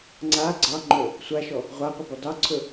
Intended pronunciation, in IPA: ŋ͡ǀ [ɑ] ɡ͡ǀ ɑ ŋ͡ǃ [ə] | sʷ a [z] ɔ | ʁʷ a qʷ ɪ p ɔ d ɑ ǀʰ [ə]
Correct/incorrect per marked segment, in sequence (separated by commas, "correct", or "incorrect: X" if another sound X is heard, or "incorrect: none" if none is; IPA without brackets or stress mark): incorrect: a, incorrect: ɵ, incorrect: ʃ, incorrect: ɵ